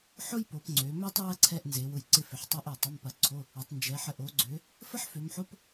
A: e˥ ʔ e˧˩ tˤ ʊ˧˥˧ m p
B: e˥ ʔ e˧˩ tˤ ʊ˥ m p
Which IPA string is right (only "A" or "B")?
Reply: A